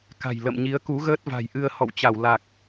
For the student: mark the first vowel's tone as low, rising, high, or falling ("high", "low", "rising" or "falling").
low